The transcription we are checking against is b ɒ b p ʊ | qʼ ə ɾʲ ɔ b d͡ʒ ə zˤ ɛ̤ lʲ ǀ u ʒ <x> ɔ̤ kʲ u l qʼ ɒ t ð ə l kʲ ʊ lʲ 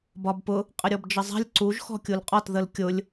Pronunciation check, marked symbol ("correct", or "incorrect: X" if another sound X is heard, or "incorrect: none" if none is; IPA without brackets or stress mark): correct